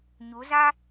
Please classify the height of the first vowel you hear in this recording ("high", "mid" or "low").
high